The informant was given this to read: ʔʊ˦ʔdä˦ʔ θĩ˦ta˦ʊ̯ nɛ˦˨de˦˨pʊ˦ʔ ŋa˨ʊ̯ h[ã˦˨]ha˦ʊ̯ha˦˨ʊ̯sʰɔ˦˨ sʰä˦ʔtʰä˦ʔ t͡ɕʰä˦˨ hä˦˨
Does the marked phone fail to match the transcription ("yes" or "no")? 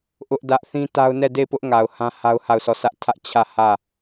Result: yes